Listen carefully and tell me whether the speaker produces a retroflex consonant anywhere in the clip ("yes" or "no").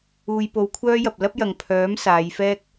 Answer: no